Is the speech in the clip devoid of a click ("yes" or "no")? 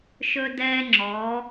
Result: no